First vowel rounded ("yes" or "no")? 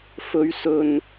yes